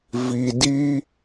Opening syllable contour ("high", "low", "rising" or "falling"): low